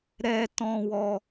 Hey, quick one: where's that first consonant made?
tongue tip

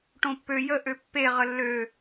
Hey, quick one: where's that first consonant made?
retroflex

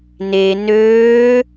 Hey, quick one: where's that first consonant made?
tongue tip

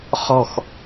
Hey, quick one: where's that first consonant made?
uvula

